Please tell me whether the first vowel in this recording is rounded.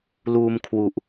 yes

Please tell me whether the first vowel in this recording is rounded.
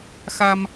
no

